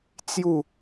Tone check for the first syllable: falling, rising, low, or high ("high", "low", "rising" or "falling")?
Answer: falling